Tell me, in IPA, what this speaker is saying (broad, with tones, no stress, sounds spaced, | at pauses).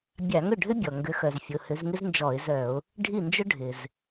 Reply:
bʲ a˧˩˧ ŋ ʏ˥˩ ɖʱ ʏ˥ bʲ ɔ˩ ŋ ɡ ʏ˨˦ x œ˩ z fʲ ʊ˩˧˩ h ʏ˨˦ z ŋ ɪ˥ z n d͡ʒ ɔ˧˩˧ ɪ̯ z œ˧˩˧ ʊ̯ | ɖʱ i˥˩ n d͡ʒ ʊ˥ ɖʱ ɪ˩ z